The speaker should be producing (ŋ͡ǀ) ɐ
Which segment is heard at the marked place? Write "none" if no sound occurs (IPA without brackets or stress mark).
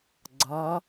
ɡ͡ǀ